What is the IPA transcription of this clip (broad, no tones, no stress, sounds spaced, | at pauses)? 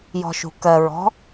j ɔ̤ ʃ ṳ k ɜ ɹ ɔ̤